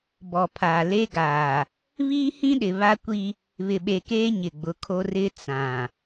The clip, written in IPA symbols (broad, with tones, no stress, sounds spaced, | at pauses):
b ɔ˨ pʰ aː˨ l e˦ ɡ aː˨ | β iː˦ h ĩ˦ ɗ ɪ˨ β a˦ kʷ i˦ | β ɪ˨ ɓ e˨ k eː˦ ɲ ɪ˨ ɡ͡b ʊ˨˦ kʰ o˦ r ɪ˦ t͡s ã˨